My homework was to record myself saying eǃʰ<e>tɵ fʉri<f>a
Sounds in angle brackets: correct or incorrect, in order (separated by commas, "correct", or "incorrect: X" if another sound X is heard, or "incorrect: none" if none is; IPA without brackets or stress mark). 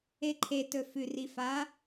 correct, correct